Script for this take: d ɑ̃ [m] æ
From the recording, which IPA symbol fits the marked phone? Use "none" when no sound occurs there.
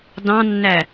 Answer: nː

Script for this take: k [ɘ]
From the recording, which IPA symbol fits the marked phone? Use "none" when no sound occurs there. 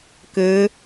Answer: ɘ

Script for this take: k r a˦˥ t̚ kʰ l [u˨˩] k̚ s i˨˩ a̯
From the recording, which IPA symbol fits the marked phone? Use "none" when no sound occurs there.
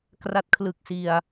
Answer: ɯ˨˩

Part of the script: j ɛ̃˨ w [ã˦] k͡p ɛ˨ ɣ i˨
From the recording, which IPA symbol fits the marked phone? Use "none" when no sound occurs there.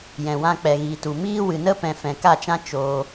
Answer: ã˧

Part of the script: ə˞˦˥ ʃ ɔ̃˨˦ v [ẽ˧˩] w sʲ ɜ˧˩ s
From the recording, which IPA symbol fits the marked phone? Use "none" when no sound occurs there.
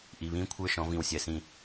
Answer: ĩ˧˩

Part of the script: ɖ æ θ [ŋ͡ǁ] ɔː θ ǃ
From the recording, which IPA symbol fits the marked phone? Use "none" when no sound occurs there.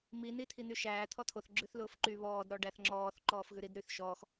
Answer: ŋ͡ǁ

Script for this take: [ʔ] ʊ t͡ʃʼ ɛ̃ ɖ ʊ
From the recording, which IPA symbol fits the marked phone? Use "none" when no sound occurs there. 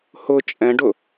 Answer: h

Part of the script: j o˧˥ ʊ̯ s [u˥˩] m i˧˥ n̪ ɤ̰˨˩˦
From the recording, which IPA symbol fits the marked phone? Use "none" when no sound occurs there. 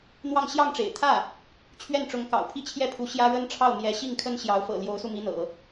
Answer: u˧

